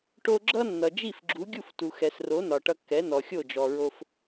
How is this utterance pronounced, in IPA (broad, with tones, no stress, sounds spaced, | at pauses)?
ʈ o˧ ɡ͡ǁ ʌ˥ nː ʌ˩ d͡ʒ i˥˩ f ɡ͡ǁ u˩˥ ɡʲ u˥˩ f t u˩ x ɛ˩ s r o˩˥ n ɒ˩ ʈ ʌ˧ kː ɛ˩˥ n ɔ˩ xʲ o˥˩ d͡ʒ ɔ˩ ɹ o˧ f